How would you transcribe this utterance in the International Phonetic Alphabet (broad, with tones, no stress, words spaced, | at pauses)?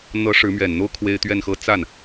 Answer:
n̪ɤ˧˥ ʂɻ̩˧˥mɥɛ˨˩nn̪o˥ʊ̯ kʰwe˥ɪ̯t̪ɥɛ˥˧nxɤ˥˧ t͡sa˥˩n